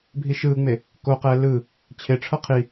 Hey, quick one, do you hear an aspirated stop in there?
yes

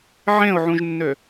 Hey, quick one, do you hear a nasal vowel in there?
yes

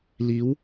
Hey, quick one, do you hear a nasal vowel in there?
no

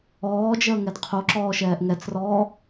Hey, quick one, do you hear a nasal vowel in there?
no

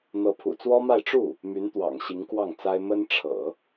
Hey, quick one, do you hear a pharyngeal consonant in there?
no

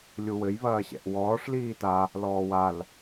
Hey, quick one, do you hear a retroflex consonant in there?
yes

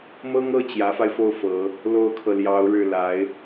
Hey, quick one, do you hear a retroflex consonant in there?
yes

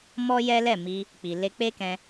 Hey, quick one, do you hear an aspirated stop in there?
no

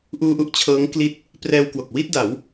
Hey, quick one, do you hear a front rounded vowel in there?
no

